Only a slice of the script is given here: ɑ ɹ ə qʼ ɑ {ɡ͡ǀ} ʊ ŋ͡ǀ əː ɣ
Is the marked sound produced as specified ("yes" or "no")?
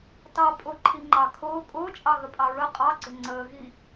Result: yes